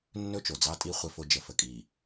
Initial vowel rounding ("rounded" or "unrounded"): rounded